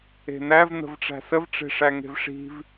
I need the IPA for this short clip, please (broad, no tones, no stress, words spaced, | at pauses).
e̤næv n̪ə̤vʈ͡ʂæ̤səv ʈ͡ʂe̤ʂæŋe̤vʂi̤v